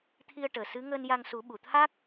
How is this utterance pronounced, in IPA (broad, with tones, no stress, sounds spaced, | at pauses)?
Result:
t̪ʰ i˧ ə̯ ʈ əː˨˩ s ɨ˧˥ ŋ əː˧ n j a˧ ŋ s u˨˩˦ ɓ u˨˩˨ t̪ʰ a˦˥ k̚